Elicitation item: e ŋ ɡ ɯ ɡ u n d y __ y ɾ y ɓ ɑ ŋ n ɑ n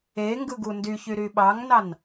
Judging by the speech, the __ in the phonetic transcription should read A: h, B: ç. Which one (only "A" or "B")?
B